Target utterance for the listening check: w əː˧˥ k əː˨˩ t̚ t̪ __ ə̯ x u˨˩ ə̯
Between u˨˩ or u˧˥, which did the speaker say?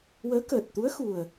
u˧˥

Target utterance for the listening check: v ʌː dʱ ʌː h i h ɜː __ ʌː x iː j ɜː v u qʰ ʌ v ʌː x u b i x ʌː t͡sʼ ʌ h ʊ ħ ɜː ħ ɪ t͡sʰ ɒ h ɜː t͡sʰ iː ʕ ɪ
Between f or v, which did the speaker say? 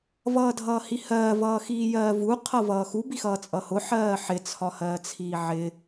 v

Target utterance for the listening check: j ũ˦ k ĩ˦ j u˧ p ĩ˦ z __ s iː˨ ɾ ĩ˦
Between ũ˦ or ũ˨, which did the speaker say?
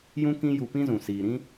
ũ˨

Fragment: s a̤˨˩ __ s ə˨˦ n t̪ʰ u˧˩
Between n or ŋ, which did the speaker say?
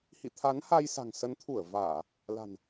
ŋ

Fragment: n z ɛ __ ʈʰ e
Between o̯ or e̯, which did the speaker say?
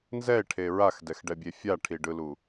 e̯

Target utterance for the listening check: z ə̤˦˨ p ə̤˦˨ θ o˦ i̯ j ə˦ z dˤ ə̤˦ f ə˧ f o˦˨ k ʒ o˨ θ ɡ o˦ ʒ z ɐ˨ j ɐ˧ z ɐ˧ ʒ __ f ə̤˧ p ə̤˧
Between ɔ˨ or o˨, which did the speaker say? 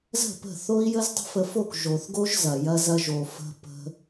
o˨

